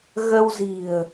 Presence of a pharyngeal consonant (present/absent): absent